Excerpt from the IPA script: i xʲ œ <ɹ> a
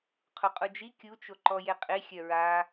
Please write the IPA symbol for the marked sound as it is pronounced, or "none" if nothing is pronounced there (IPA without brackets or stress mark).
ɹ